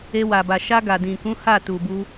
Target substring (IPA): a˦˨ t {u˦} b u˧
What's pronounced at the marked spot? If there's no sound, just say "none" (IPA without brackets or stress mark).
u˨